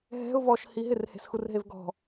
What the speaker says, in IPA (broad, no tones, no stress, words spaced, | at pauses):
ɦɛ̤ʊ̯ vɔʃhi ɦɪrhe̤sxurɦev ɡɔ̤